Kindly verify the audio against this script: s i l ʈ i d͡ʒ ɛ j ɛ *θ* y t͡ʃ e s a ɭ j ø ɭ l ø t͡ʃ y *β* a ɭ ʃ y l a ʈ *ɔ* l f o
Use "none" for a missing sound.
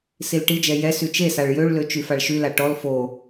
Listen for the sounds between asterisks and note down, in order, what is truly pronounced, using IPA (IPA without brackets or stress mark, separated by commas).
s, f, ɔ